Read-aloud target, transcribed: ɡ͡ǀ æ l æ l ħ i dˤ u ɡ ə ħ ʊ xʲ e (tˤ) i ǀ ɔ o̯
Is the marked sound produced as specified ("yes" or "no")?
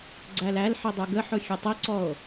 yes